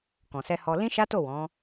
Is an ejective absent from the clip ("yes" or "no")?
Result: yes